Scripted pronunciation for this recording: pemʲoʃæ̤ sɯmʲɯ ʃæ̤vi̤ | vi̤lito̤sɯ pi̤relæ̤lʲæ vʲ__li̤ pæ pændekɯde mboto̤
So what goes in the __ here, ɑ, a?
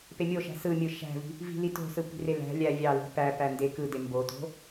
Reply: ɑ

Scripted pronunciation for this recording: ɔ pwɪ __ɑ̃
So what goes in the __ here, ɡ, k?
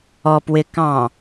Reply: k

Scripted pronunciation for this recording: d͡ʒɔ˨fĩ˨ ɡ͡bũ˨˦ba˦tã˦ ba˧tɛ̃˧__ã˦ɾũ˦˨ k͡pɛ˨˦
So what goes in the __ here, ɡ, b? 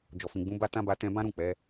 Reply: b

